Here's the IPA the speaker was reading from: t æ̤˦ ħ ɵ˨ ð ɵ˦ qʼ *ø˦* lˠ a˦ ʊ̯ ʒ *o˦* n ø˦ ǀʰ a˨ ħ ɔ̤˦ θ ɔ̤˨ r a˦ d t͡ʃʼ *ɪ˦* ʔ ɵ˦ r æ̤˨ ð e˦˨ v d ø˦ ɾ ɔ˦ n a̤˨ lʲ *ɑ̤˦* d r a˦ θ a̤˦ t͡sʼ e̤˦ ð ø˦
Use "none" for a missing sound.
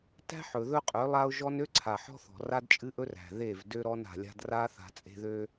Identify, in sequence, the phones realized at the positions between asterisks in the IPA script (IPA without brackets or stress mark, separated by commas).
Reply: ø˨˦, ɔ˦, ɨ˦, a̤˦